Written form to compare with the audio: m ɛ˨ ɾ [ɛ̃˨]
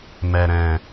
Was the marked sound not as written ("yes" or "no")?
no